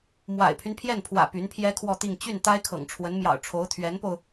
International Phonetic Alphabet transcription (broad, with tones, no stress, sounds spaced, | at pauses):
m w a̰˨˩ ɪ̯ pʰ y˦ n pʰ j ɛ˥˩ n pʰ w ä̰˨˩ p y˧˥ n pʰ j ɛ˥ kʰ w ɔ˥˧ t̪ i˥˧ ŋ t͡ɕ y˥˩ n t̪ a˥ ɪ̯ kʰ ɤ̰˨˩ ŋ ʈ͡ʂʰ w ə˧˥ n m j ɑ̰˨˩ ʊ̯ ʈ͡ʂʰ o˧˥ ʊ̯ t̪ʰ ɥ ɛ˧˥ n p o˧ ʊ̯